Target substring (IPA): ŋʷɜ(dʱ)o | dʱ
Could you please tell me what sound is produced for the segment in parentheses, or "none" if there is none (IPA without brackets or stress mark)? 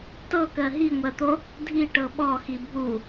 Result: t̪